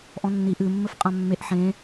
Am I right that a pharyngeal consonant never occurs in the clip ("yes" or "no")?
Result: no